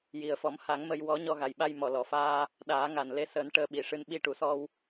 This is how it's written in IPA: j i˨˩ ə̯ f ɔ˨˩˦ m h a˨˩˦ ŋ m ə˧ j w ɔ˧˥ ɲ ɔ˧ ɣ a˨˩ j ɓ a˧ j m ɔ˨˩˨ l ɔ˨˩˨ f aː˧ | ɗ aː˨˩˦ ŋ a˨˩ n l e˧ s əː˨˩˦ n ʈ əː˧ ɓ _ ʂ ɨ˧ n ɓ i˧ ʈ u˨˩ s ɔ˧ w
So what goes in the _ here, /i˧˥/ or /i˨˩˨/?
i˨˩˨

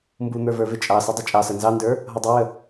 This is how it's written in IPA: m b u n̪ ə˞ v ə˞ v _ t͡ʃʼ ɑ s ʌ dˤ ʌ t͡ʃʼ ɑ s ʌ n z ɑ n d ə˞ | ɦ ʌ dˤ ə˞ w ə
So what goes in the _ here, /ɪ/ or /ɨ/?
ɪ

